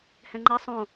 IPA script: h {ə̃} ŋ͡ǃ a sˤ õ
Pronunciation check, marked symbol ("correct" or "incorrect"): incorrect